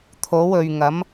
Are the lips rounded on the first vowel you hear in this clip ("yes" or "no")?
yes